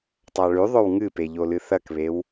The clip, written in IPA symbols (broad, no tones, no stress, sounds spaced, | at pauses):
tˤ a ɭ ʉ ðˤ ɵ w ŋ ɨ p e ʎ o l ɨ θ ɐ k β e w